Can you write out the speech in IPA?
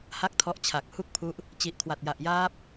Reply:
ha˥˩k̚tʰɔ˦˥ʔt͡ɕʰa˨˩k̚ hu˥˩k̚pʰu˦˥ʔ | t͡ɕi˨˩ʔkʰwa˨˩t̚ ja˨˩ʔjaː˦˥p̚

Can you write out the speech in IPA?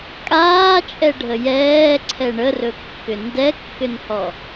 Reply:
kʼaːt͡ʃʼɛɖʱə jɛːǀʰɛ ɳərɵkːʏ ndɛkːʏnhɔ

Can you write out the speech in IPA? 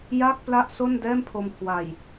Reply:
ja˥˩k̚ pla˥˩ʔso˥˩ndɛː˥˩mpʰo˧m kʰwa˨˩j

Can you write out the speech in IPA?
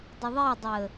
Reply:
dˤəðˤedˤəː

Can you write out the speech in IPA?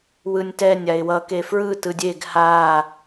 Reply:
wɯnʲtɛnʲ aɪ̯wʌ kefɹɯ tɯdʲeɡ ha

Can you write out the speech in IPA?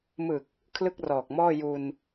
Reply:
mɯ˨˩k̚ | kʰlɯ˥˩k̚rɔː˨˩k̚mɔː˥˩ ju˧n

